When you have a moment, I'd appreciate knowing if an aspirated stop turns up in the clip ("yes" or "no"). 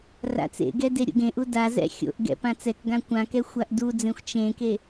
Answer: no